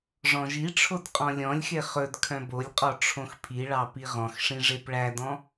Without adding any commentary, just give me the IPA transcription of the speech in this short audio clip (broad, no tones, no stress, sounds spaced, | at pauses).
ʐ ɔ̃ ʒ i ʈ͡ʂʰ o d qʼ ɔ̃ lʲ ɔ̃ lʲ x e χ ɵ d kʰ œ̃ b o lʲ qʼ ɔ ʈ͡ʂʰ õ x pʰ i ɭ ɑ p i ʁ ɔ̃ x ʂ ĩ ʐ e p ɭ æ d ɔ̃